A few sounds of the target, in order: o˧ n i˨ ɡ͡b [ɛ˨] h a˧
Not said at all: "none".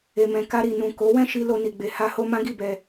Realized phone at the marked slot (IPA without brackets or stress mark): e˨